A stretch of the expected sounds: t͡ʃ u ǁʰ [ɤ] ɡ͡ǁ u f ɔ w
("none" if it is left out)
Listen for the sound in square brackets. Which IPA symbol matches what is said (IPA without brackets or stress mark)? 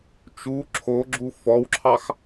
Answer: o